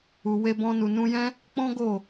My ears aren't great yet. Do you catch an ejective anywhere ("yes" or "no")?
no